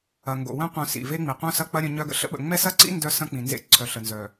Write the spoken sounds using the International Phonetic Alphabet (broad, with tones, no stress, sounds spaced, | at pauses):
ɐ˨ ŋ ɡ o̰˨ w œ̃˦ qʷ œ̃˨ s ḭ˨ v e˦ ŋ͡m i˨ qʷ œ̃˦ s ɐ˦ k͡p ɐ˦ ɾʲ œ̃˦ ɲ œ˦ ɡ ə̰˦ ɬ ə̰˦ ɓ ə̰˨ ŋ͡m ɛ˦ s ɐ˦ ǀ ḭ˦ n d œ˦ s ɐ̃˦ k͡p ĩ˨ n z ḛ˦ ǀʰ œ˨ ɬ ə˨ n z œ˨